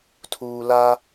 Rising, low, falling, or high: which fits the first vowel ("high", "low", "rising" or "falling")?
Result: low